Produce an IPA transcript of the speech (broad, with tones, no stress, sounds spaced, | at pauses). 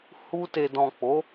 h u˧ t e˨ d ɔ̃˨ k͡p o˨˦